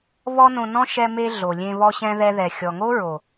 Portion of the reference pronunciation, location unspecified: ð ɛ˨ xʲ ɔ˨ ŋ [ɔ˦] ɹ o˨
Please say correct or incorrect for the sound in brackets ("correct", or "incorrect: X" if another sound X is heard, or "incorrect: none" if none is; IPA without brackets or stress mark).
incorrect: o˦